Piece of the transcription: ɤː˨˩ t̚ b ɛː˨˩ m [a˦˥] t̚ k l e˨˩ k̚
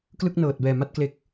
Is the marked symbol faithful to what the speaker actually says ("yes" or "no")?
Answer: no